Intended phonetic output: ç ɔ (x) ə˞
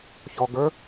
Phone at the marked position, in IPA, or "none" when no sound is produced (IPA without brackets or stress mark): ɡ